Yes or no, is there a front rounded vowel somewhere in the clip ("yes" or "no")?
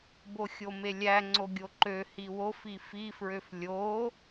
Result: yes